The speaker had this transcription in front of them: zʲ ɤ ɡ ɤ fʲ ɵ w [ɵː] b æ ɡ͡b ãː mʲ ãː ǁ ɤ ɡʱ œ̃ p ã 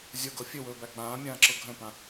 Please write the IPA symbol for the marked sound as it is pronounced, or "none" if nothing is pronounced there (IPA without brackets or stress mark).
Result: ɵː